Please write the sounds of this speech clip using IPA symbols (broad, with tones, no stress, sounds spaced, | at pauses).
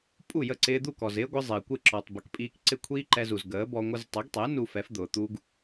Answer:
pʼ u˥˩ j ə˥˩ ǀ ɪː˧ d̪ u˥˩ k ɔ˩ z ɪː˥ ɡʷ ɪ˧ zˤ ɪː˩ kʷ ɪ˥˩ ǁ ɔ˩ tˤ b ə˩˥ k pʼ iː˧ k ǀ ɪ˥˩ kʷʰ iː˥ ǃ ɛ˧ z u˩ z ɡ əː˩˥ b ɔ˧ ŋʷ ə˧ z tˤ ʊ˩˥ ɡ tˤ ɛ˩˥ n u˧ f ɛ˩˥ f d̪ ʊː˩ t̪ u˥ ɡ